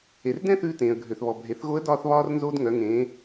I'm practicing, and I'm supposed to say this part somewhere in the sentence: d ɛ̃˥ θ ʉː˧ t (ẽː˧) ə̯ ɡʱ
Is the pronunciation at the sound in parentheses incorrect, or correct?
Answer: incorrect: ẽː˩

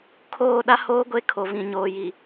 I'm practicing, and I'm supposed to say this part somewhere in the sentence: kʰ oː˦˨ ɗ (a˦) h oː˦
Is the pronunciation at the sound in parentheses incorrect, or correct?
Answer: correct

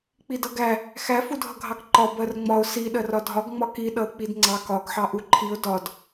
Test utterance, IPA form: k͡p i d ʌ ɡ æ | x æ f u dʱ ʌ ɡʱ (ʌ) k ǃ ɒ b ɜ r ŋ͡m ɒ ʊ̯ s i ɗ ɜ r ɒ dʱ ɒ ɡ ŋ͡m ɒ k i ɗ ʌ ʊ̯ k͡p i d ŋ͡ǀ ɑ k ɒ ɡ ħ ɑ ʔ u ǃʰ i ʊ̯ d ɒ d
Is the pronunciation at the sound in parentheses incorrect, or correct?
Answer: incorrect: ɑ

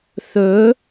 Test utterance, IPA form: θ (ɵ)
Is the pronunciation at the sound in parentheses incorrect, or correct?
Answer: correct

